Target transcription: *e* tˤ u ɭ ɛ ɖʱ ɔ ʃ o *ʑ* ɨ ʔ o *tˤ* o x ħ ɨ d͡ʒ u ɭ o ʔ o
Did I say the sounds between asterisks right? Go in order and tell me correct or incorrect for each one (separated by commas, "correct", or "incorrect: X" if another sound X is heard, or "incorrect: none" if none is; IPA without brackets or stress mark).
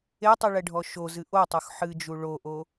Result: correct, incorrect: z, correct